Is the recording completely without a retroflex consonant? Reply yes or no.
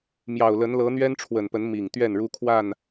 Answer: no